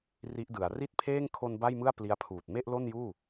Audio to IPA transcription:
r i˦˥ ʔ d ɯ˩˦ a̯ r i˥˩ t̚ pʰ eː˥˩ ŋ kʰ o˧ n b a˥˩ j m ɯ˥˩ a̯ p l i˦˥ a̯ pʰ uː˨˩ t̚ m e˥˩ ʔ l o˥˩ n j uː˥˩

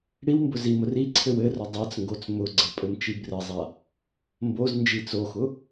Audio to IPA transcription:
ɽ i w m b ʊ z i m ʊ r i ǀʰ ɘ w ɘ r ʊ dˤ a t͡s ŋ ɡ o t͡s m ʊ ɡ͡ǀ ɘ pʼ ɘ m t͡ʃ i b r ɘ zˤ a | m b o z n d͡ʒ i t͡s o x ʊ

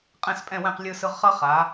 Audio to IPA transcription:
qʼ ɛ̃˥˩ s pʼ ɛ̃˥˩ w ɛ̃˥˩ q lʲ ɯ˧ s ɯ˧ ʁ χ ʌ˥ χ a˩˥

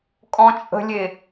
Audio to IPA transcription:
kʼ ɔ̃ t͡ʃʼ ə̤ lʲ e

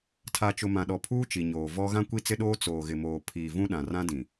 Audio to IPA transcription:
tʰ a˨ t͡ʃ ʊ˨ m ã˨ ɗ ɔ˨ pʰ uː˦ t͡ʃ i˨ ɲ oː˨ v ɔ˦ ɣ ã˦ kʷ i˦ t͡s ɪ˦ ɗ oː˦ t͡s oː˨ ɣ ɪ˨ m oː˨ pʰ iː˨ v ũ˦ ɗ ã˨ r ã˦ d ĩ˨

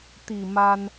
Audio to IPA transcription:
t̪ i˨˩ m a˧ n

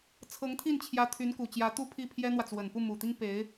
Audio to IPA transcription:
t͡sʰ ɤ˧˥ ŋ t̪ʰ i˥˩ n t͡ɕʰ j ä˧˥ t̪ʰ y˧˥ n k u˨˩ t͡ɕ j ä˧˥ t̪ u˥ pʰ i˥˩ pʰ j ɛ˥ n̪ w ä˨ t͡s w ə˨˩ n p u˥˩ m u˨˩ t̪ i˥ ŋ p e˧˥ ɪ̯

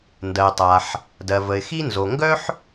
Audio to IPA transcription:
n d ɜ˩ tˤ a˩ ħ | d ɜ˩ v ə˩ ɪ̯ x i˥ n z o˩ ŋ ɡ œ˥ ħ

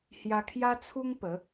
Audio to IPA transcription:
h j a˧ kʰ j a˦ t͡sʰ u˦ ŋ p ə˨˦

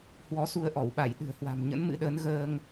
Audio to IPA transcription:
h w ɔ˨˦ s u˧ ə̯ ʔ ɔ˧˩ w ɓ a˧˩ j ɗ ɨ̤˨˩ ə̯ h w a̤˨˩ m ɲ ə̰˧˥ n m ɨ̰˧˥ ɗ əː˨˦ n ɣ əː˧ ŋ

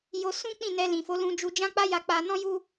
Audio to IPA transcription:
j o˧ s ũ˦ k͡p ĩ˦˨ n ɛ˧ l ĩ˨ f o˨˦ l ũ˧ d͡ʒ u˧ d͡ʒ ã˦ k͡p a˦ j a˧ k͡p a˧ n ɔ̃˦ j u˦

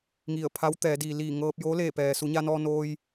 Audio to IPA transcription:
ŋ i˧˩ ə̯ pʰ a˧˥ w t̪ ɛː˩˧ d iː˩ l iː˧˩ ŋ ɤː˧ p̚ j o˧˥ l eː˧˩ p ɛː˩ s u˩˧ ɲ a˧ n ɔː˧ n oː˧ j

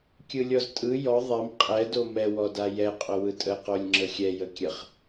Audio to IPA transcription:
kʲ ɯ lʲ ɔ z tʼ ɯ j ɔ ðˤ ɛ m qʼ ɛ d o m ɛ w ɔ d a j ɛ qʼ o w ɯ tʼ ə q o lʲ ŋ͡ǁ ə xʲ ɛ j ə kʲ ə χ

